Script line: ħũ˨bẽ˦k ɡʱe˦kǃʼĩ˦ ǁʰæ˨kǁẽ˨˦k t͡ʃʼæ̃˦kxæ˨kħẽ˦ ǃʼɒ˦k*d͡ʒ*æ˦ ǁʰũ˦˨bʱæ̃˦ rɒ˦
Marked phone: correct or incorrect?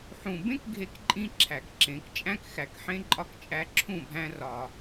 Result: incorrect: t͡ʃʼ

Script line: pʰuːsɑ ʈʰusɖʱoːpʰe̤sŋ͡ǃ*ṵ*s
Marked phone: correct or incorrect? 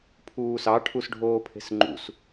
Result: correct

